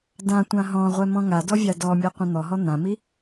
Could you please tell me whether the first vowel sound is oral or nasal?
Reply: nasal